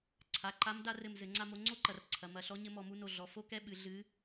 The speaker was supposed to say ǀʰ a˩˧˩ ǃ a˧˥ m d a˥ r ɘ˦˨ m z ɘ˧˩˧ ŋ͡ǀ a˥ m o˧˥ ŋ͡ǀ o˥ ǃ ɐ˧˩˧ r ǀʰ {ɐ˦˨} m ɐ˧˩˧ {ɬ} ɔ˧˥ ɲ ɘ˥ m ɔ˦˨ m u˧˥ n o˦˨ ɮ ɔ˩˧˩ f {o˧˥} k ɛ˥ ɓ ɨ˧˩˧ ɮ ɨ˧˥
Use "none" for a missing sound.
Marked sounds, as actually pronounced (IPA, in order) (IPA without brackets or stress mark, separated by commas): ɐ˩˧˩, ɬ, o˥